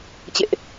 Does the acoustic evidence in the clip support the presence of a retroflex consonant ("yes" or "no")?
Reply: no